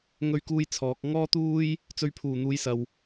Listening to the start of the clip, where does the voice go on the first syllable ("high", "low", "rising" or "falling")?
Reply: high